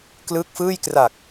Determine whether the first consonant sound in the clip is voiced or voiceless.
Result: voiceless